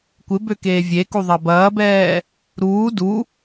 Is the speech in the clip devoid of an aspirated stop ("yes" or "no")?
yes